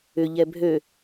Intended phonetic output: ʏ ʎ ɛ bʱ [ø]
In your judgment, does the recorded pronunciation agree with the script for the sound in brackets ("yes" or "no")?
yes